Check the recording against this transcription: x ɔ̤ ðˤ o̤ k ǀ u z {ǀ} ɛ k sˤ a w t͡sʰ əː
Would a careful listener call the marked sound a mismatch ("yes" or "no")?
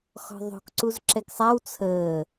yes